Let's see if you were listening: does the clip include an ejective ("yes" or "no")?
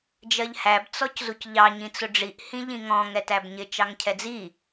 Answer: no